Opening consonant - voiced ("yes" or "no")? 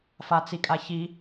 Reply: no